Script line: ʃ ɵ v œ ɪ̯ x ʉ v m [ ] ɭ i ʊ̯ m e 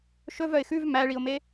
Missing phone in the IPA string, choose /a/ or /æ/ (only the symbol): æ